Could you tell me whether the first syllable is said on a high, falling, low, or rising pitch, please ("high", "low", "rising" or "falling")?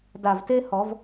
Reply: low